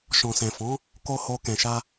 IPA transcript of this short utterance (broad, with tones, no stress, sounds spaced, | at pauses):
ʃ ɔ̃˨ s ɛ̃˨ f ɔ̃˨˦ | k o˧ h o˧ k ɛ̃˨ ʃ a˧